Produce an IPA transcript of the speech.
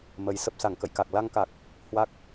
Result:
mə˨˦j sə˨˩p̚sa˧˩ŋkə̰˧˨jka˨˩k̚ la˧ŋka˨˩k̚ | hwa˦˥k̚

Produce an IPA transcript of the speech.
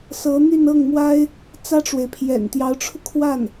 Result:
sɤ˧˥n̪y˥˧nɤ˥˩ŋmwa˥ɪ̯ | t͡sä˥ʈ͡ʂwe˨ɪ̯ pʰjɛ̰˨˩nt̪jɑ˧˥ʊ̯ʈ͡ʂʰu˧ kʰwa˥˩n

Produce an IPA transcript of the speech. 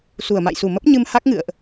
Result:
su˧˩ə̯ma̰˧˨jsu˧˩ mə˦˥p̚ɲɨ˧m ha˦˥k̚ŋɨ̰˧˨ə̯ʔ

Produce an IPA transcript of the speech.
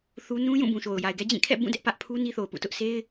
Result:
θu˦ nũ˦jũ˦˨bũ˨ʃo˨ʊ̯ ja˨ɪ̯ɡɛ˦d͡ʑĩ˦˨ kʰɛ̰˦˨bũ˦˨ dɛ˦ʔpä˦ʔ pʰu˦ ni˦θo˨ʊ̯pṵ˦˨tʊ˦ʔ sʰe˦ɪ̯

